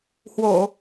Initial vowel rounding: rounded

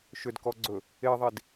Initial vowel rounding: rounded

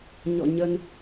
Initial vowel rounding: rounded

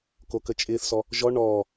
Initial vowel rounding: rounded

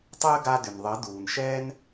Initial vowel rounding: unrounded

